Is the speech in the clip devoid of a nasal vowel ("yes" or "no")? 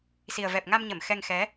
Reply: yes